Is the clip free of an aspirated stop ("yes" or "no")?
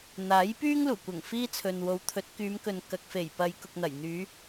no